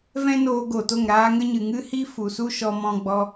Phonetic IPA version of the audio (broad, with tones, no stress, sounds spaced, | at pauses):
v ɛ̃˦ n oː˧ ɡ o˨ t o˦˨ ŋ ɾ aː˦ ŋ ə˦ ɲ ɨ˨ ŋ ɨ˦ h i˦ f u˨ s u˦ ʃ ɔ˧ m ɔ̃˧ ɡ͡b ɔ˧